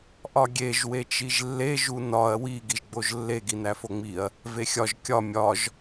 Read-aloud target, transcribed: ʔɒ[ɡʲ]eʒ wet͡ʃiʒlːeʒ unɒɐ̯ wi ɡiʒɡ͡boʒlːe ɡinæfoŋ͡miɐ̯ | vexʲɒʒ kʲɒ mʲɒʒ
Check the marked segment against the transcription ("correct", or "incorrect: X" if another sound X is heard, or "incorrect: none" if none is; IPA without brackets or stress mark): correct